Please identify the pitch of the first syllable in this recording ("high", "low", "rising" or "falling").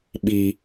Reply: low